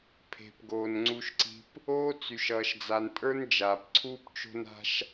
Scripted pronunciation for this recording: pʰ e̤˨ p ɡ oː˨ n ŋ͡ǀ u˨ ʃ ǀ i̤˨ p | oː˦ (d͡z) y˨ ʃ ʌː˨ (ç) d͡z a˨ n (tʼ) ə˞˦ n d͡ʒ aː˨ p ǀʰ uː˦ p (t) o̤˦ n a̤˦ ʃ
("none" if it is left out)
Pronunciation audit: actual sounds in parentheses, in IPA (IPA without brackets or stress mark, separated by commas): t͡s, ʃ, tʼ, t͡ʃ